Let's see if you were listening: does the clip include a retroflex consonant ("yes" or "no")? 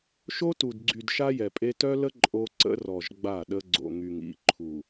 no